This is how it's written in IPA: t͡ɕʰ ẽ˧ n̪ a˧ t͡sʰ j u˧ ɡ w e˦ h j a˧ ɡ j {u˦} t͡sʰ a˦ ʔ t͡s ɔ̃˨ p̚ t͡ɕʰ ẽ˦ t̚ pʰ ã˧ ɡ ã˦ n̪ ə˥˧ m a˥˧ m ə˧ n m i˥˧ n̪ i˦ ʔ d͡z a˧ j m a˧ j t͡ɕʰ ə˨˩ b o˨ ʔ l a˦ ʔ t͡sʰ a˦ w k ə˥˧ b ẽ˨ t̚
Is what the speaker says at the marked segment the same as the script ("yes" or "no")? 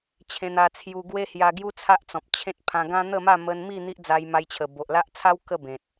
yes